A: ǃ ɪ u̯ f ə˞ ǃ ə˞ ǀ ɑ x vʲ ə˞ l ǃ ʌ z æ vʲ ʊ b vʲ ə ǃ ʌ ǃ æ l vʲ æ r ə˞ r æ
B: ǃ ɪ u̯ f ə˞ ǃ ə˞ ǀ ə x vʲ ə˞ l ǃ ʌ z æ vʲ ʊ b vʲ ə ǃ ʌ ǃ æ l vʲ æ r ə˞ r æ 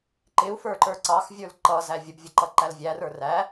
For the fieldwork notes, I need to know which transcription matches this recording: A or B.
A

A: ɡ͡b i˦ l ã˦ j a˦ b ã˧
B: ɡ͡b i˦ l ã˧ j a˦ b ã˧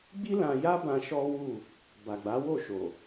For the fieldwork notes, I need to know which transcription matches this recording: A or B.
B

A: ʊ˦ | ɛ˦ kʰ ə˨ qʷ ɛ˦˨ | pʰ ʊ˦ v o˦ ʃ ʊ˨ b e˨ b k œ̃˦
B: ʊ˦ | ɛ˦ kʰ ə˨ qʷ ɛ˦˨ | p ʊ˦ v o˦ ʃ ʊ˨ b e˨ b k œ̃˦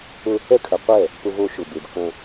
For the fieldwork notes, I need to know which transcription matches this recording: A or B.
B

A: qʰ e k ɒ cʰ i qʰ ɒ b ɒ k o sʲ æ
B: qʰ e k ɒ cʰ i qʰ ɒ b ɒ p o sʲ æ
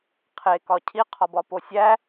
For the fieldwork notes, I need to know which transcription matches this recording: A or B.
B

